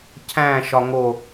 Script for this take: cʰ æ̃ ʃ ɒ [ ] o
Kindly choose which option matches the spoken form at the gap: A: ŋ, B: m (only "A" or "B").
A